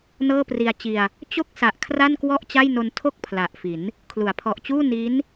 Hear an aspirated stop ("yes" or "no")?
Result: yes